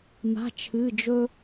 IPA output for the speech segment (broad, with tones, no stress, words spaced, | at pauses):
ma̤˧˥˧t͡ʃʰɨ˧˥˧ d͡ʒɵ˥